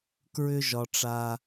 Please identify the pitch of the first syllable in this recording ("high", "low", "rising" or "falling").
high